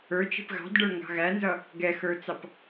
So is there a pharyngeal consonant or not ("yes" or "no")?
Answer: no